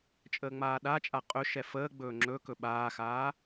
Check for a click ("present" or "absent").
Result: present